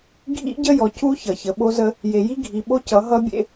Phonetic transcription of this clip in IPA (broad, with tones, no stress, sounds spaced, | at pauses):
ɡʱ ḭ˦ ɟ ə˦ j ɔ˨ c u˦ ç ʌ˨ ç ə˨ ɓ o˦ z ə˦ | j e˨ j i˦ ɡʱ i˨ ɓ o˦ c ʌ˨˦ ɦ ʌ˦ bʲ ḛ˦